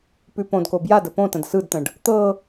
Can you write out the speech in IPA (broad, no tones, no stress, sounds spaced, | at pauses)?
p ʉ p õ d k o b j a d ə p õ t ə̃ d s ɯ d t̪ ə̃ ɖ | t̪ ɤ